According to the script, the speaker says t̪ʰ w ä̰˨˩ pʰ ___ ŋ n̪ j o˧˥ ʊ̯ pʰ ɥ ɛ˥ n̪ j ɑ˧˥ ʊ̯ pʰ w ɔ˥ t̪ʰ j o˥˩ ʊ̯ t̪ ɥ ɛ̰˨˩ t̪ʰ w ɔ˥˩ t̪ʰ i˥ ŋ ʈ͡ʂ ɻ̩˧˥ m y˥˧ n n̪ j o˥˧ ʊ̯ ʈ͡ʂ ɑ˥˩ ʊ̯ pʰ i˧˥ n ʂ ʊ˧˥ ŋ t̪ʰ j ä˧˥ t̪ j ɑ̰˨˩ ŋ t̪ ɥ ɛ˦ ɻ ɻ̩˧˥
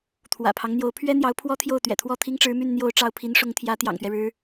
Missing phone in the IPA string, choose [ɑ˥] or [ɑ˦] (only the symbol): ɑ˦